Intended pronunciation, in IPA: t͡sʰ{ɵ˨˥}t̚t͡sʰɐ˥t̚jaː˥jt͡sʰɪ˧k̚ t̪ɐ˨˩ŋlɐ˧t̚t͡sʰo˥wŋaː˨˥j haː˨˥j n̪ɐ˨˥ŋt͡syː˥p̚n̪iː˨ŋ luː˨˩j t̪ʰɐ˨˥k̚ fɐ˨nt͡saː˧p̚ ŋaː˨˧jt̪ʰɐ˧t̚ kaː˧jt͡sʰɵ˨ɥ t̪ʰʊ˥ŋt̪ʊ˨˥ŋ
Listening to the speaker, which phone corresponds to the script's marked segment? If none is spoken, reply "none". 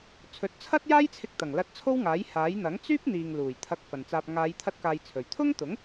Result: ɵ˨˥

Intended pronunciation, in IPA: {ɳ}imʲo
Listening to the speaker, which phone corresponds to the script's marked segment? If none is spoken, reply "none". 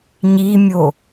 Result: ɲ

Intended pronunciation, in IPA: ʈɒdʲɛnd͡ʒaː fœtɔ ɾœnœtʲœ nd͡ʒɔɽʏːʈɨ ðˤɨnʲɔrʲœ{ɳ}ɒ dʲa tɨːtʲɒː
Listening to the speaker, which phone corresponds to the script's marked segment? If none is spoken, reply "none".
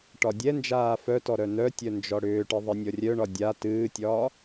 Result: ɳ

